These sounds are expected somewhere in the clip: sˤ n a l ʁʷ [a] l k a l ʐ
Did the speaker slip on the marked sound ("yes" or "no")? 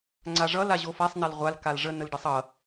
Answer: no